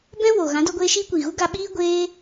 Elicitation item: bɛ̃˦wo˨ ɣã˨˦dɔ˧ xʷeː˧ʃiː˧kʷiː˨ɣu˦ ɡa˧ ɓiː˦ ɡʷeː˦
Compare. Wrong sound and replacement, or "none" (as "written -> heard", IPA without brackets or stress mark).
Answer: xʷ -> ɡʷ